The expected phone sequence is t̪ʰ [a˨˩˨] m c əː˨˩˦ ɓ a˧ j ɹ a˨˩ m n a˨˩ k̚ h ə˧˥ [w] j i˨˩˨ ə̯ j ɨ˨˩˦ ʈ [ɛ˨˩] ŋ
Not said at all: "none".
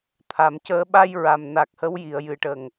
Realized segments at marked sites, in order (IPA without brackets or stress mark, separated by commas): a˨˩˨, w, ə˨˩